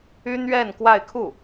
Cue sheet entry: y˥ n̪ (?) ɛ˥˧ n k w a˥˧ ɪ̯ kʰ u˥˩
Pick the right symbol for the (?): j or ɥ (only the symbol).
ɥ